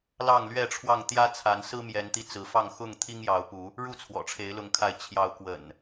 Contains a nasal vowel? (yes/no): no